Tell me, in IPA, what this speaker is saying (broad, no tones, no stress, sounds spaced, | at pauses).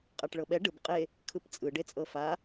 qʼ a ʈ ɭ ɤ ɓ ɛ ɖ ɯ b qʼ e | kʰ ɯ p t͡sʼ ɯ ɖ e t͡sʼ ɤ f a